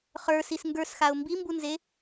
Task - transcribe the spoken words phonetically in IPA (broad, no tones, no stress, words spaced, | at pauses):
χə˞sis ŋɡə˞sxaʊ̯ mbimbunze